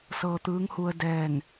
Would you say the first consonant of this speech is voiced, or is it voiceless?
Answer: voiceless